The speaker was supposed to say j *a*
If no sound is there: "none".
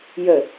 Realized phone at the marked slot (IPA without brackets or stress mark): ə